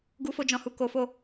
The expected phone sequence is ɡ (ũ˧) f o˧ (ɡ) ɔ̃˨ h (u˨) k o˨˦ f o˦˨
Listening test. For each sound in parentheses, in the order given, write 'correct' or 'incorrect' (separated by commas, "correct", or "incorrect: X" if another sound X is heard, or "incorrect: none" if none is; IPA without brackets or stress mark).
incorrect: u˧, incorrect: d͡ʒ, correct